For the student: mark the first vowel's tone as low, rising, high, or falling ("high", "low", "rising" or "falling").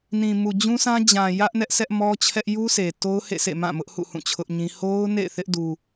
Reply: low